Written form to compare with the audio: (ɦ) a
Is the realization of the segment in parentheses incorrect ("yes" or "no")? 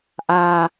yes